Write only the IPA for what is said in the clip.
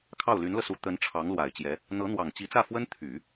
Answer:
kʰɑ˥˩ʊ̯ly˧˥nlɤ˧su˧˥ t̪ə˧˥n ʈ͡ʂʰɑ˧˥ŋlwa˨˩ɪ̯t͡ɕjɛ˧˥ | n̪ɤ˧˥n̪wɑ˨˩ŋ t͡ɕi˧˥t͡sä˥˩fwə˥n t̪ʰy˨˩˦

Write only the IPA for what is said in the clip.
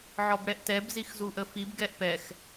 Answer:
ʕɔbɽɛʔtɛb zixzuʔəfib ɡɛʔpɛx

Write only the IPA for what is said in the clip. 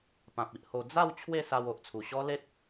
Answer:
pã˨p̚i˨ʔho˧ d͡za˥˧w t͡ɕʰwe˥˧sa˧w o˨ʔt͡sʰu˨˩ ɕɔ˦le˦t̚

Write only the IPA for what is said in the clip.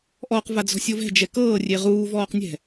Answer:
ʔɔq vad͡zɔ̤sʲovɛ̤ d͡ʒɛkɤː rʲeʁuː vɔːqnʲɛ̤

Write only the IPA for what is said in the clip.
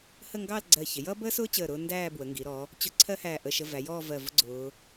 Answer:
hə˥˧ŋɡɑ˥˧l ɡ͡ǀɜ˧˩çɪ˩˧ jʌ˥ bəː˥sʊː˥t͡ɕəː˧˩ɾʊː˧ ndæː˥˧bwə˩˧ŋɡi˩˧ɾɔ˩˧ | t͡ɕʊ˥˧ ǀʰɜ˥hæː˧˩ʔə˧˩ ʃə˧væ˩˧jɔː˥˧ vɜ˧˩vʊ˥ ɡ͡ǀʊː˩˧

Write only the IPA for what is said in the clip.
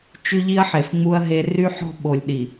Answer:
t͡ʃy˦ʎi˦ɐ̯ħe˨fŋ͡mu˦ɐ̯ ɦe˦ ry˦ħɔ̤˦ ɓo˨lʲɗi˨

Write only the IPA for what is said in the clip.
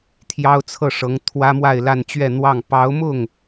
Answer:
t̪ʰjɑ˥ʊ̯t͡sʰɤ˥˩ʂɤ˧˥ŋ t̪ʰwä˥mwa˥˧ɪ̯la˥˧nt͡ɕɥɛ˥˧ n̪wɑ˥˩ŋ pɑ˧˥ʊ̯mʊ˥˩ŋ

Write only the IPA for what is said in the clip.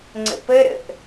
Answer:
ŋ͡ǀə̰pəɾə̰ʔ

